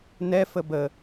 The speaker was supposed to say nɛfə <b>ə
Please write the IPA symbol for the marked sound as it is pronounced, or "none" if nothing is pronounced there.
b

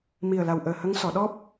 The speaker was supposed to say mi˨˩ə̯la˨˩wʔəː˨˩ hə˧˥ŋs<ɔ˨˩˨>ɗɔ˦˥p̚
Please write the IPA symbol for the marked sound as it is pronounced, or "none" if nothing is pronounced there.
ɔ˨˩˨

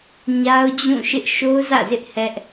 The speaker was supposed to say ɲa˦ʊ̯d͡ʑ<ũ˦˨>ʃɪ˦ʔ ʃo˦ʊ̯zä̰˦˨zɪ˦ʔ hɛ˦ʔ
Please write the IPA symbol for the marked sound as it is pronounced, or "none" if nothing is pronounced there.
ũ˦˨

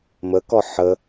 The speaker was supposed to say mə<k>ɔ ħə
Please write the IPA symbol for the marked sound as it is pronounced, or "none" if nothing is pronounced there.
k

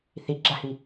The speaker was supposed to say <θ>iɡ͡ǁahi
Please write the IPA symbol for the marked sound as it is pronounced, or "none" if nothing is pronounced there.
θ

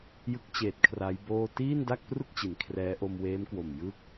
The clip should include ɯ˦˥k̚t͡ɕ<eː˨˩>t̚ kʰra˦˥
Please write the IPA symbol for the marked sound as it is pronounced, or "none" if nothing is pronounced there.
eː˨˩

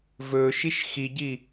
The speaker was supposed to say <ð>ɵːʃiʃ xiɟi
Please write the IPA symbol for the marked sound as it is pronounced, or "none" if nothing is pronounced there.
v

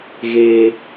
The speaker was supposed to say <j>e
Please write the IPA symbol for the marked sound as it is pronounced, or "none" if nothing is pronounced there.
ɣ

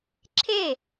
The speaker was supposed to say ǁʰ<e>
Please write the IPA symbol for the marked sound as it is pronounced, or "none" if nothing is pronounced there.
e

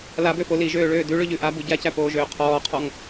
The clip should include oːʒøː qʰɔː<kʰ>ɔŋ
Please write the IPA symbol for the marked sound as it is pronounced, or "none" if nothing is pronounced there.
qʰ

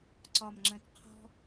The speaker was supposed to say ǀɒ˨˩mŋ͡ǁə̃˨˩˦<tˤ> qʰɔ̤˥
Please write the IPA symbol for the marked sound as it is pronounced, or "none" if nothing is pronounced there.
t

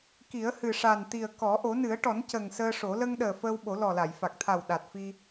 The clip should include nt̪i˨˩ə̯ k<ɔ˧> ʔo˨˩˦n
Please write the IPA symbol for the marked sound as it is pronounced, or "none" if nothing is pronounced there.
ɔ˨˩˦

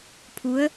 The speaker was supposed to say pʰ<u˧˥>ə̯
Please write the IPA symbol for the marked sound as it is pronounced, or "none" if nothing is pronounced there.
u˧˥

